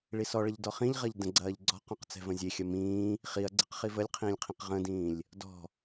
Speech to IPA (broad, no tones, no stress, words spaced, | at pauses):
ɭisɔ ɭɐʎdɔχĩʎʁɐʎ də̃ɡ͡ǀɐːʎɡ͡ǀɔ̤qɔ̃q t͡sɛ̤və̃zʲexʲɐ mĩː | χiɐ̯ɡ͡ǀeqχi vəlʲqʰĩːlʲqʰĩq ʁə̃dĩːlʲ | dɔ̤